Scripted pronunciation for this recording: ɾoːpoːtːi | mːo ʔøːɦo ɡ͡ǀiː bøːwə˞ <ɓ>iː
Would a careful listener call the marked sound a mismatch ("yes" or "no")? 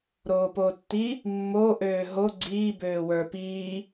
yes